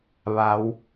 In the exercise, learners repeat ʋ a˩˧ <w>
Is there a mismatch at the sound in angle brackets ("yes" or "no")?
no